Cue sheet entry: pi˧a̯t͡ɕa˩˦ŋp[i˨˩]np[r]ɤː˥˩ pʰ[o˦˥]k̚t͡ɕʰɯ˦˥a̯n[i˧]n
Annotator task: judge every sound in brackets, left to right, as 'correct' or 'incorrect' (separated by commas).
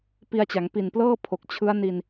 correct, incorrect, incorrect, correct